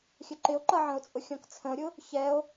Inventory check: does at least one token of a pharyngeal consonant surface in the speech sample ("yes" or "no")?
yes